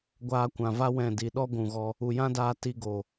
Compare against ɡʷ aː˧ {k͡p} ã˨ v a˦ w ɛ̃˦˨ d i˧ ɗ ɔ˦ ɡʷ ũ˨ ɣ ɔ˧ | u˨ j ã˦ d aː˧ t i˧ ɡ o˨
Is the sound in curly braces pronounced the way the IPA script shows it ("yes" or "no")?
no